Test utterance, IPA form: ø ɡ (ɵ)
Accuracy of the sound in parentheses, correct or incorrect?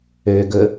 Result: correct